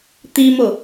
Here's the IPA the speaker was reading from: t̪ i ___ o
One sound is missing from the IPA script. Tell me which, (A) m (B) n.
A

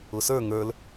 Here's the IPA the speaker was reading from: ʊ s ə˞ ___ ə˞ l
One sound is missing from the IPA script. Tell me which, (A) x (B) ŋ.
B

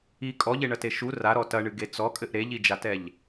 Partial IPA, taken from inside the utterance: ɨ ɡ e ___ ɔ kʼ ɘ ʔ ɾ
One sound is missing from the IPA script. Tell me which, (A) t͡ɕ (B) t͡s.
B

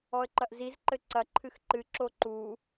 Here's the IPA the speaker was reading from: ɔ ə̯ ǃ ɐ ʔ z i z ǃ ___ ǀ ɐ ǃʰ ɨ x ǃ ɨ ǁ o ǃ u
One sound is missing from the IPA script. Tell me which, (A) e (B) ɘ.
B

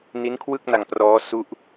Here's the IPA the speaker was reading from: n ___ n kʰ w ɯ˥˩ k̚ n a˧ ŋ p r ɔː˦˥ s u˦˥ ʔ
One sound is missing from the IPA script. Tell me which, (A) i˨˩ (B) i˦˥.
B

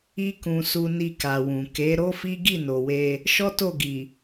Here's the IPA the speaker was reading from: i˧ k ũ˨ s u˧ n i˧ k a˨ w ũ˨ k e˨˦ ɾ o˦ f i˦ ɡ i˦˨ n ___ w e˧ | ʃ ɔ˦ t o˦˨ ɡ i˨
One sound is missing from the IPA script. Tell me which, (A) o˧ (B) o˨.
B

